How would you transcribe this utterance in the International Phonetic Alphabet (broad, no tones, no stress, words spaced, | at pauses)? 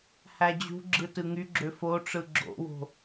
hæd͡ʑṳɡ͡ǁɯ tɯŋyɡ͡ǁø foʈ͡ʂɯ ɡ͡ǁo̰wo̤